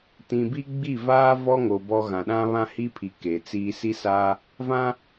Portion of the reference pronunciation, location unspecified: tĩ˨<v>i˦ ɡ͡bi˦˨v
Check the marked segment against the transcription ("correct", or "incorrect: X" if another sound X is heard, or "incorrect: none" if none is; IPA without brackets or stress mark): incorrect: b